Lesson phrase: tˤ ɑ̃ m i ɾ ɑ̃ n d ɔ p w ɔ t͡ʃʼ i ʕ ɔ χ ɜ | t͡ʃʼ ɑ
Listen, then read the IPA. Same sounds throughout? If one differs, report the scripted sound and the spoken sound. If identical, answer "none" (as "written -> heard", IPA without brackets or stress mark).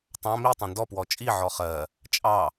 ɾ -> tˤ